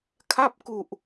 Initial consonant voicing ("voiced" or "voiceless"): voiceless